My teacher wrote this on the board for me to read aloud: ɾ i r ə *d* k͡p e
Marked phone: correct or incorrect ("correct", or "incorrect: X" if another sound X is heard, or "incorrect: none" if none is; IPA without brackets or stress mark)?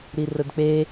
correct